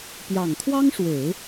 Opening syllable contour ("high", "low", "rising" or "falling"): low